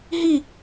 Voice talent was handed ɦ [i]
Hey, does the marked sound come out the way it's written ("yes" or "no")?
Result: yes